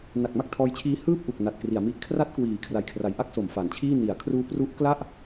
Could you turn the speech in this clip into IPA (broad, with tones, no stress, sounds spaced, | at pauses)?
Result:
n a˨˩ k̚ m a˥˩ k̚ tʰ ɔː˧ j t͡ɕʰ iː˧ h ɯː˥˩ p̚ ʔ u˨˩ k̚ n a˨˩ t̚ k r i˩˦ a̯ m i˦˥ ʔ kʰ r a˦˥ t̚ k w iː˩˦ kʰ r a˨˩ j kʰ r a˨˩ j ʔ a˥˩ k̚ s o˩˦ m f a˨˩ n t͡ɕʰ iː˥˩ n i˩˦ a̯ kʰ r uː˦˥ p r u˦˥ ʔ k l a˥˩ ʔ